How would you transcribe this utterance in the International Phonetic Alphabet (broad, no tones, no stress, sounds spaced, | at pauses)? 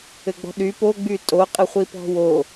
ɘ ɡ͡b ɔ̤ ɗ y p o ɡ͡b y tʼ o qʼ ɘ χʷ i p ɔ̤ w o